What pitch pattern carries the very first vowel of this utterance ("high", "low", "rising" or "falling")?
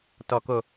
low